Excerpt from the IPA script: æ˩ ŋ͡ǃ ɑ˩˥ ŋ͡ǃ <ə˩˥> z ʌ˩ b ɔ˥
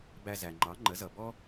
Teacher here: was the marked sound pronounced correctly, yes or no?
yes